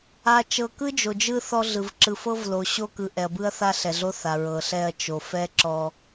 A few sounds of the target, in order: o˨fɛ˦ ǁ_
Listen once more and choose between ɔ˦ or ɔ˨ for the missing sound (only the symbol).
ɔ˦